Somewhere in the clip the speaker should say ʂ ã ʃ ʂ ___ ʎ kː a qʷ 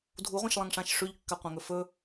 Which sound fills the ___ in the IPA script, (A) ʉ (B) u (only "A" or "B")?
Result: A